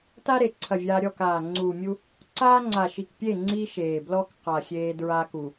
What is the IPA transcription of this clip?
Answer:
ta˦ɾe˨ǀʰɐ˨ vʲa˦ ɾʲɔ˦˨kaː˨ ŋ͡ǀuː˨mʲu˦ | ǀaː˦ŋ͡ǀa˨ʃi˨kpʲe˦˨ ŋ͡ǀi˦ʃeː˨blɔ˦k qa˨ xʲeː˦dɹaː˦k u˨

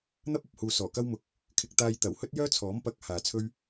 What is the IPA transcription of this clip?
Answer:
n̪ɐ˥p̚ɐ˨p̚huː˨ sɔː˨˩kɐ˥wmʊ˨˥k̚ | kʰɪ˧k̚t̪aː˧jt̪ɐ˨˩w hɵ˥t̚jœː˥t͡sʰɔː˨˥m pɐ˧k̚ haː˨t͡sʰɵ˥ɥ

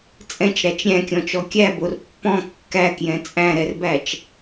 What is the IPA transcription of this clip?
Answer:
t͡sʼɛ̃t͡ʃɾæt͡ʃ ɾʲæ̃kʲɔ̃t͡ʃɔ kʲæbor pːɔ̃ kːækjɛ̃ t͡sʼæ̃ɾɛrbæt͡ʃ

